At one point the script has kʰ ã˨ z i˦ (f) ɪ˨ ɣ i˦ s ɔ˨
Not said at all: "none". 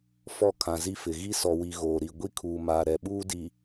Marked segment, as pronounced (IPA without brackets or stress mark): f